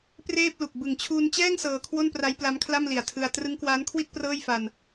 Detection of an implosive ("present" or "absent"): absent